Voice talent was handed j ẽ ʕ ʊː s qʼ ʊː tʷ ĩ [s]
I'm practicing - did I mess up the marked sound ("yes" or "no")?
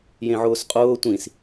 no